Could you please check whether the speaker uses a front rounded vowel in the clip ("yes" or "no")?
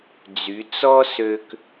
yes